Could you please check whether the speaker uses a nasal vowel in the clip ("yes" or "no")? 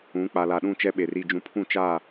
yes